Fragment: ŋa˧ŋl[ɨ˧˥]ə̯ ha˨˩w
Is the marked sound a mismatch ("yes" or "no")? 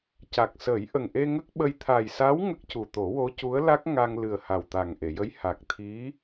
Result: yes